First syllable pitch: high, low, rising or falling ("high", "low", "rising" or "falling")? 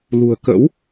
low